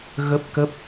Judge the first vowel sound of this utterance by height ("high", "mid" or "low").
mid